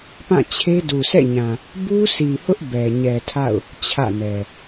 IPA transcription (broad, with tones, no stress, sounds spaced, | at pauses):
p ã˦˨ t͡ɕʰ e˦ d u˨ sʰ ɛ̰˦˨ ɲ ã˨ | b u˦ sʰ i˨ h ʊ˦ ʔ b ɛ˨ ɲ ɛ˨ tʰ a̰˦˨ ʊ̯ | t͡ɕʰ ä̰˦˨ n ɛ˨